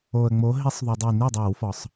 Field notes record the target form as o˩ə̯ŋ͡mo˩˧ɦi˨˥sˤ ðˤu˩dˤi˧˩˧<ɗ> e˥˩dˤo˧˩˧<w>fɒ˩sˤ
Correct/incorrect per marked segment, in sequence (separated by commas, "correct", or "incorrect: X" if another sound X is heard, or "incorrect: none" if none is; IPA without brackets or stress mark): incorrect: n, correct